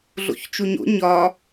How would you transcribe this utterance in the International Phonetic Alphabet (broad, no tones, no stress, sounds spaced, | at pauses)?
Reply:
ɮ o̰ ç t͡ʃ u ɲ o̰ ɲ ɒ